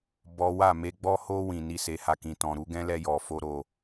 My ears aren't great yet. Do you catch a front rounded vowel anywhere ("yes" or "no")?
no